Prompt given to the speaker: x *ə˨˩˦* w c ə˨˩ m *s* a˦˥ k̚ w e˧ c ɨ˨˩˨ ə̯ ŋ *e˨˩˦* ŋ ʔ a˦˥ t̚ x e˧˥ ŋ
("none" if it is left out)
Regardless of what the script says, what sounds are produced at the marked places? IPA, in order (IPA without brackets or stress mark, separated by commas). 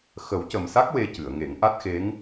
ə˨˩˦, s, e˨˩˦